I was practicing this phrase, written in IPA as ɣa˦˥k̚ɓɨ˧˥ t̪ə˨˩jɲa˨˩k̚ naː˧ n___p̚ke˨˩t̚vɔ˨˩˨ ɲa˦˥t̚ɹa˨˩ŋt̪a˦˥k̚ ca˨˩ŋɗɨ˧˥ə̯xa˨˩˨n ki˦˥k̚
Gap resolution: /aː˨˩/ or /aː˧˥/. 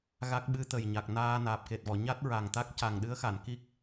aː˨˩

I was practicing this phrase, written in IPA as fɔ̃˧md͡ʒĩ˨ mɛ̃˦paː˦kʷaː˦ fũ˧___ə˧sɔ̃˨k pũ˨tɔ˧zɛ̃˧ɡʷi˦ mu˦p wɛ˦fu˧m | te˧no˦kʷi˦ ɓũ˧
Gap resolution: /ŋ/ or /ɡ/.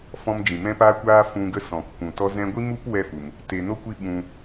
ɡ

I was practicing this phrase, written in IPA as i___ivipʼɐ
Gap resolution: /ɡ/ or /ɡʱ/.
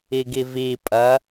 ɡ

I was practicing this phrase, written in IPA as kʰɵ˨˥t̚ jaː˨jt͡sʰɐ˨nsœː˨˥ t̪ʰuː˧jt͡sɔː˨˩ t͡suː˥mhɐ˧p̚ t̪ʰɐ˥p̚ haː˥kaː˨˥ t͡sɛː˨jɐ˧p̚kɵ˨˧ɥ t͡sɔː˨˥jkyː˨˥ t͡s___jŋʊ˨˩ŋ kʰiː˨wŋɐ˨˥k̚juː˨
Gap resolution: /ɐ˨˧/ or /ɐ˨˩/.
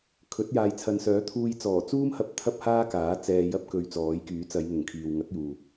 ɐ˨˧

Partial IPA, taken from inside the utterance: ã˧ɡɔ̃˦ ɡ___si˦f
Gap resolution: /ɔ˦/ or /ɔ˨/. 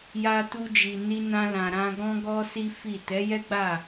ɔ˦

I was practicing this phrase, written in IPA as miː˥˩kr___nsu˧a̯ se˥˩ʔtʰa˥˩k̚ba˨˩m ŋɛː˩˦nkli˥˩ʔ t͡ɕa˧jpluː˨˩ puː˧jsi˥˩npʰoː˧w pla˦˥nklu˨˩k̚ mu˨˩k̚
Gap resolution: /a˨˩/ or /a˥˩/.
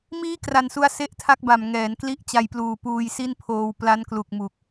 a˨˩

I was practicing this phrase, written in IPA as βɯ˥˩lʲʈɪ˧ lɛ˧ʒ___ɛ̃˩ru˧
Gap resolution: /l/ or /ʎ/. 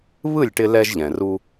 ʎ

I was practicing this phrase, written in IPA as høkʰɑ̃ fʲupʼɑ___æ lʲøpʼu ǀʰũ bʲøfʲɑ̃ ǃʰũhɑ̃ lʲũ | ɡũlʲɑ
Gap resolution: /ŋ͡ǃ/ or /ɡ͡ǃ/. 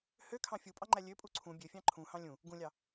ŋ͡ǃ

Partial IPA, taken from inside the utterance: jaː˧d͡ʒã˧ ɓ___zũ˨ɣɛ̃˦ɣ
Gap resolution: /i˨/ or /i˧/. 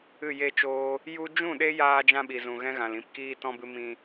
i˨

